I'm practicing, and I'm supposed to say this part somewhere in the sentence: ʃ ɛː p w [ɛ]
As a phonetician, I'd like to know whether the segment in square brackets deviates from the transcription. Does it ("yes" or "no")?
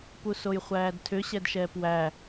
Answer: yes